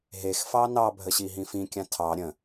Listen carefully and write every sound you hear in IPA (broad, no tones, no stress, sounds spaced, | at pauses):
ɦ e x f ɑ n ɑ bʱ ə ɕ i ɦ ĩ f ĩ kʲ ã tʰ ɑ ɾʲ ə̃